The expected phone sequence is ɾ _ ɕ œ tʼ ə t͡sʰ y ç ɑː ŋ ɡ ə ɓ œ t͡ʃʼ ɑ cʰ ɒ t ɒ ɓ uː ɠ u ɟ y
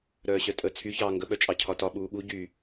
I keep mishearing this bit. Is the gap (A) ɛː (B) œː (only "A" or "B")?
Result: B